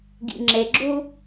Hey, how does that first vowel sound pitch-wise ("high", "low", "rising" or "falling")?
low